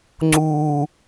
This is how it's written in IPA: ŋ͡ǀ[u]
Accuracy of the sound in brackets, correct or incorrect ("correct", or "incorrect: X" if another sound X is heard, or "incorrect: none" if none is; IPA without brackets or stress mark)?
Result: correct